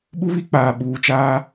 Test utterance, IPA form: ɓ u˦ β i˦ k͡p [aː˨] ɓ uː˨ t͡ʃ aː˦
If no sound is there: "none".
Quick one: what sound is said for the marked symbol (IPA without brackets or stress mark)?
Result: aː˨